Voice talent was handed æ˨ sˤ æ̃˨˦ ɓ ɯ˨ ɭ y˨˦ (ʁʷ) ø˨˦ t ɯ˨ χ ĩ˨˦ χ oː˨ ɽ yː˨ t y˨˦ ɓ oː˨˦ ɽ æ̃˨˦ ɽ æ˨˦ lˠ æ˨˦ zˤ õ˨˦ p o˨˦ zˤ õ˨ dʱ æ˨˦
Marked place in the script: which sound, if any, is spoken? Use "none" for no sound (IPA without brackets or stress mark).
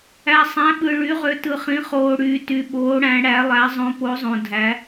ʁ